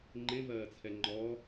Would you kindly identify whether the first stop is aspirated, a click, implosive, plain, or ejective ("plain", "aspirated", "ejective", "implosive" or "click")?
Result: click